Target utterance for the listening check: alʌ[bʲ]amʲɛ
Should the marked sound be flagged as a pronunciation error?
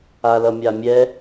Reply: yes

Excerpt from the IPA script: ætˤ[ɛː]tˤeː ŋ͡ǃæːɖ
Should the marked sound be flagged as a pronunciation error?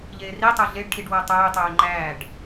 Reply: no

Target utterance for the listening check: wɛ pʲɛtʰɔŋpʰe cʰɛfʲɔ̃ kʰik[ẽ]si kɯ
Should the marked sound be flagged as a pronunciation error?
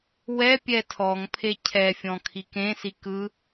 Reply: no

